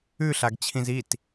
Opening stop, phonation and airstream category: plain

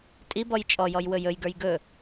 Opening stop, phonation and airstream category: ejective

